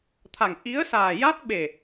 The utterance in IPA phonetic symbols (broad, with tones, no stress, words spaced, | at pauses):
t̪ʰa˨˩ŋ ʔi˧˥ə̯ saː˨˩ja˦˥t̚ ɓe˨˩